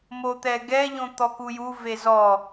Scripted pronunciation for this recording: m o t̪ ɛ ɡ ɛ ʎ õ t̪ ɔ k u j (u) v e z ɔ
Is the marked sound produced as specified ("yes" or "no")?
yes